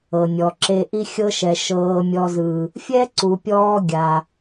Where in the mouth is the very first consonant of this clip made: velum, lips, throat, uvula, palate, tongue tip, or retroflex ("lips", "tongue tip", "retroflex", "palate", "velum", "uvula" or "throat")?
tongue tip